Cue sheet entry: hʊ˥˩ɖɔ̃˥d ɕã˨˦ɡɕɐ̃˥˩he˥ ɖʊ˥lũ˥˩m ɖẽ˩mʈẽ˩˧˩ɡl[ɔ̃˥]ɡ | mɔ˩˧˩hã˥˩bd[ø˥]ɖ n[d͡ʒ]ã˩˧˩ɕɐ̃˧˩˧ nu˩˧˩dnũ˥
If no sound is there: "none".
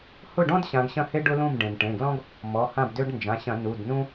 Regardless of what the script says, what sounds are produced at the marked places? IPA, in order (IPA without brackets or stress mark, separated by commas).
ɔ̃˥, ø˥, d͡ʒ